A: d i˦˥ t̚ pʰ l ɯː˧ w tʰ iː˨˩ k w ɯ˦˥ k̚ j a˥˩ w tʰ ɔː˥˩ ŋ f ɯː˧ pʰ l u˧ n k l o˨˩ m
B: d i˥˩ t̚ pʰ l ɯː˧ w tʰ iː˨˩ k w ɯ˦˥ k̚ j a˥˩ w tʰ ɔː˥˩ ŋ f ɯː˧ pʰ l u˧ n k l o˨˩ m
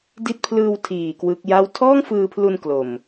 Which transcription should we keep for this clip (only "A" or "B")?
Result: A